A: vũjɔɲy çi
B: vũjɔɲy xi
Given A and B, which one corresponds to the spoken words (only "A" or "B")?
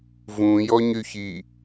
A